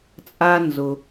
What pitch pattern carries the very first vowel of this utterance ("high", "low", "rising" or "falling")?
low